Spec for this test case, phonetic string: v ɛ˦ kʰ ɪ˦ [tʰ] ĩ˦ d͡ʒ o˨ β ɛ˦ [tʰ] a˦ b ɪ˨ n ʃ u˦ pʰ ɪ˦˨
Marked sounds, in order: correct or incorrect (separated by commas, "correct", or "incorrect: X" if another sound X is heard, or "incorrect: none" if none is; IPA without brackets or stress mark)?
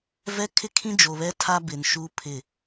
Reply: incorrect: kʰ, correct